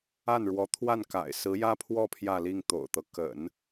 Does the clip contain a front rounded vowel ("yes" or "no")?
no